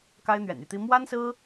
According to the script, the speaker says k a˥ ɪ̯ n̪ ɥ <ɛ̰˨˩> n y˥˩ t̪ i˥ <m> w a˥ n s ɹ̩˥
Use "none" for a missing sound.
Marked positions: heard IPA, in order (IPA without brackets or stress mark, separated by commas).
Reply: ɛ̰˨˩, m